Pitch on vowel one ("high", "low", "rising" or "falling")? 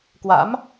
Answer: rising